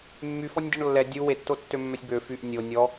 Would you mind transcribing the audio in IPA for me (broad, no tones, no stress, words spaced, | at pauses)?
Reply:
mːyfɔnʲdʲɔɳ lːɛ dʲu wetːotːømːœsʲ bø fyʔ nʲo nʲɔ